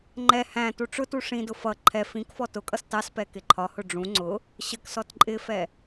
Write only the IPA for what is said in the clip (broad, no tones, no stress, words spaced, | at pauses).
ŋ͡ǃɛ hæ̃ tuʈ͡ʂʊtu ʂĩdʊ fʌ ǃʰɛ fĩkfɔ tʊkʼʌs tɑspɛ kɪǃʰɒhʊ ɖ͡ʐũ ŋ͡ǀʊ | ɕək sɔtǃʼɪfɛ